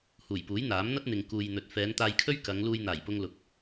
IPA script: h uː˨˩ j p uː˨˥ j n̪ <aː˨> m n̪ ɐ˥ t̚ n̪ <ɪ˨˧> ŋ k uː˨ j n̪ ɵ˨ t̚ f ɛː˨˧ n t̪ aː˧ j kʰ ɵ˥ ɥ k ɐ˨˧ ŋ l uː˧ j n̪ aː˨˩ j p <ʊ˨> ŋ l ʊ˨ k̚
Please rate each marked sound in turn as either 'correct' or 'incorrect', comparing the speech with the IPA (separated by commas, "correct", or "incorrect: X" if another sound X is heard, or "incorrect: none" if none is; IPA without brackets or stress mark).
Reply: incorrect: aː˨˥, incorrect: ɪ˨, incorrect: ʊ˧